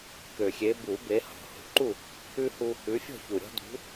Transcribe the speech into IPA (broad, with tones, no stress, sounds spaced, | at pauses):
k ø˨˩ xʲ e˨˦ b u˨˩˦ b e˨˦ h ɔ̤˨˩ h ṳ˨˩˦ ǃ u˥˨ | ʉ˦ h u˦ | ʉ˨˦ fʲ ɔ̤˥˨ ç u˨˩ ɾʲ ɔ̤˦ d ṳ˨˦